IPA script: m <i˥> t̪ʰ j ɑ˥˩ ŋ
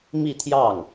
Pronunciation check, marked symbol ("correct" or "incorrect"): incorrect